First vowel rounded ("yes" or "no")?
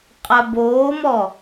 no